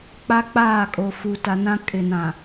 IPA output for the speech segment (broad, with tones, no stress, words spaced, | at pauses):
k͡pa˦ k͡paː˦˨kʼo˨ fu˨ta˨nã˦ kʼɪ˨nã˨